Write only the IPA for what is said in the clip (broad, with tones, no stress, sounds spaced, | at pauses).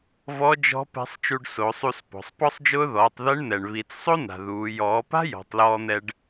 v ɔ˧˥ d͡ʒ ɔ̤˧˥ p ɛ̤˧˥ sˤ t͡ʃ u˧ ɖ s o˩˧ sˤ u˧ s p ɔ̤˩ sˤ p ɔ˥ sˤ d͡ʒ ʊː˥ ð ɔː˩˧ tˤ ð ɛ˧˥ ɳ n̪ ɛ˩ ɳ β i˩˧ t͡s sˤ o˥ n a̤˩ ð uː˩˧ j ɔː˩˧ p a̤˥ j ɔ̤˩˧ tˤ l ɔː˧ n̪ ɛ˧ ɖ